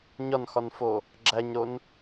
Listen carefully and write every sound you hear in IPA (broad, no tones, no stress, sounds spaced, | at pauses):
ɲ ɒ n x ɒ n f o | ɡ͡ǁ æ ɲ ɾ o n